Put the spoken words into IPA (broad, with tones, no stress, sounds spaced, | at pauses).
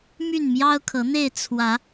m y˥˨ n m j ɑ˦ ʊ̯ kʰ ɤ˨˦ n̪ e˥˨ ɪ̯ t͡sʰ w ä˨˦